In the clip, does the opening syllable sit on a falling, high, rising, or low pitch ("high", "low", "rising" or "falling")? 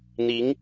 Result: rising